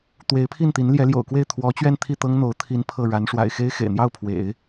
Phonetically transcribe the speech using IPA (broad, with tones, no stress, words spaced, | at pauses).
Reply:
t̪we˧˥ɪ̯pʰi˥˩nt̪i˧˥n ljɛ˧˥ljo̰˨˩ʊ̯kwe˥˩ɪ̯ t̪ʰwɔ˧˥t͡ɕɥɛ˥˧n t̪ʰi˥˩t̪ɤ˥ŋn̪o˧˥ʊ̯ t̪ʰi˧˥n pʰɤ˥˩ ɻa˧˥nʂwa̰˨˩ɪ̯ xe˥ɪ̯xḛ˨˩ɪ̯n̪jɑ˥˩ʊ̯ pʰwḛ˨˩˦ɪ̯